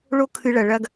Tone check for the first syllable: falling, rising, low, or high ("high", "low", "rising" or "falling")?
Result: high